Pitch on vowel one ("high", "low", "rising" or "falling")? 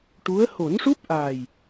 rising